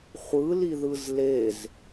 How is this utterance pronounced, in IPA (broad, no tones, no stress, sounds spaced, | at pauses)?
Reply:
χʷ ɯ l i ð ɯ z l e z